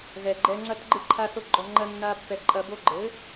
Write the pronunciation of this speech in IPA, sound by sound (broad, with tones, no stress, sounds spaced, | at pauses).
ɣ ɛ˨ ɡ͡ǃ ɛ˧ ŋ͡ǀ ɐ˦ t ɡ͡ǃ ɨ˦˨ ǃʰ a˦ θ o˦ ɡ͡ǃ ɔ˧ ŋ͡ǃ ɐ˦ nː a˦ pː ɛ˧ ǃʼ ɐ˧ b o˦ ɡ͡ǃ ɘ˨˦